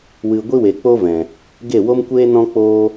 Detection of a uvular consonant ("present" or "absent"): absent